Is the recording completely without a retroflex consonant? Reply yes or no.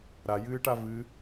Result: no